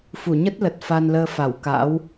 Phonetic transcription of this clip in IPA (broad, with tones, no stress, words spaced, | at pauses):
fu˧˩ɲə˦˥t̚lə˨˩t̚ fa˧nləː˧fa˧˩wka̰ː˧˥w